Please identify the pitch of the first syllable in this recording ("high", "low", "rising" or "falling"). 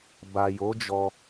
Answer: low